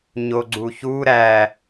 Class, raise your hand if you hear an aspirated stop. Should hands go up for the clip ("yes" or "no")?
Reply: no